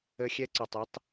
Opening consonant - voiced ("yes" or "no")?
no